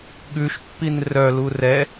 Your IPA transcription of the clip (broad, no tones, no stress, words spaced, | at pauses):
ɠʉʃpːin rœ lurɛ